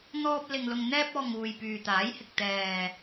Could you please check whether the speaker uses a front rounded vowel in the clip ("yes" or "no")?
yes